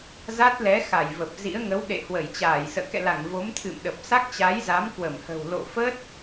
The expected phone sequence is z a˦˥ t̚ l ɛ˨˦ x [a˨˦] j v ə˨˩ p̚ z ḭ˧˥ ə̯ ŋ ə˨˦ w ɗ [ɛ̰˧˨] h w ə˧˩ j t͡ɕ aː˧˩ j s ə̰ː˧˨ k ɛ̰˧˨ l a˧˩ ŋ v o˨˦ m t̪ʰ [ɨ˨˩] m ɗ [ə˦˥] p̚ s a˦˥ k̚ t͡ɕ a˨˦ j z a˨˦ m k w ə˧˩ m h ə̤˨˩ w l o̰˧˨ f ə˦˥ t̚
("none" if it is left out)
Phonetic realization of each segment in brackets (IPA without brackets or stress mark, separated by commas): a˧˩, ḛ˧˨, ɨ̰˧˨, ə˨˩